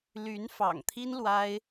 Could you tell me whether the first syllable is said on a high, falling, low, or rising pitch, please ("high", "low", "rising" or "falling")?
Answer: rising